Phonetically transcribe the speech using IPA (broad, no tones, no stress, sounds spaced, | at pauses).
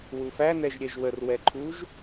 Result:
w u f æ n ɛ ʒ ɾʲ ɛ ʒ w ə r w ɛ ǃʰ u ʒ